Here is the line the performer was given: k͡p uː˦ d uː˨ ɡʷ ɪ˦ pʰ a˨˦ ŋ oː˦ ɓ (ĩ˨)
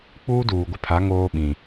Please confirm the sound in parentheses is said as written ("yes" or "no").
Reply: yes